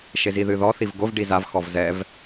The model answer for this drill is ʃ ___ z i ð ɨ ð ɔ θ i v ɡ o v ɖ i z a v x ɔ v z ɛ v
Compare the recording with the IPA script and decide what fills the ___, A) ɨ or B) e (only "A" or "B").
B